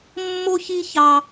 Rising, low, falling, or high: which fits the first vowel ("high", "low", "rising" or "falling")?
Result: high